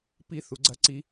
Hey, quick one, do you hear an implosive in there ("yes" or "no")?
no